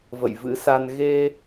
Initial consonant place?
labial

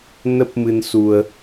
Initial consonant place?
alveolar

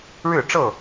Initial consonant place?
retroflex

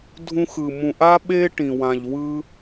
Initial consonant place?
alveolar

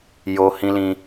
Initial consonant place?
palatal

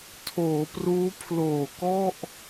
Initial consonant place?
alveolar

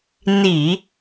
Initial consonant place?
alveolar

